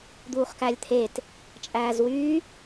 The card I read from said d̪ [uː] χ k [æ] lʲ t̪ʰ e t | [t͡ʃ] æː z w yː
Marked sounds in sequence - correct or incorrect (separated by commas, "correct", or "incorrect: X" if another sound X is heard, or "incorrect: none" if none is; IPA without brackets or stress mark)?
correct, correct, incorrect: t͡ʃʼ